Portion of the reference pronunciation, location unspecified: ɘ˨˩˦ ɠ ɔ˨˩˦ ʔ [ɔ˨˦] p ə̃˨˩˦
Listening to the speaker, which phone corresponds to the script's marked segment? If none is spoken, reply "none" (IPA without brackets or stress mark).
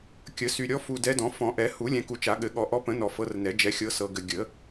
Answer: ɔ˨˦